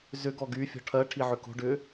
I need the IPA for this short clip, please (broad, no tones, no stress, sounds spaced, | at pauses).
z ʏ ɡ ɔ ɡ y fʲ ɔ̤ ʈʰ ɜ ʈʰ i ʕ ʏ k o̤ ɖ ʏ